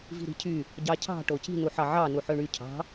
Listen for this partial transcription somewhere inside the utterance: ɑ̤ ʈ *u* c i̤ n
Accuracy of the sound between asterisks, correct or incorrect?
incorrect